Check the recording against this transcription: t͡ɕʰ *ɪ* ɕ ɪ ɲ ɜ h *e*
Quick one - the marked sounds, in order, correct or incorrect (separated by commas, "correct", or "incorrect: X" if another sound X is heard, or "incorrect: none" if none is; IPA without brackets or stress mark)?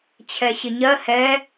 incorrect: ɛ, incorrect: ɛ